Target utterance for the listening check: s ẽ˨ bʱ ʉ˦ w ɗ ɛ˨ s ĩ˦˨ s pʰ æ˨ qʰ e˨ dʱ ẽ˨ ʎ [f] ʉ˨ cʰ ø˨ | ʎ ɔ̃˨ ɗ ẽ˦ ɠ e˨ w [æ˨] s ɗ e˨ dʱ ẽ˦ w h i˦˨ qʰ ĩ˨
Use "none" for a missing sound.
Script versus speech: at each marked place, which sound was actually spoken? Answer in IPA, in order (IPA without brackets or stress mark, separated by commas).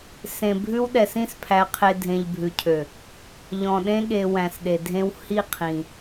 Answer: bʱ, æ̃˨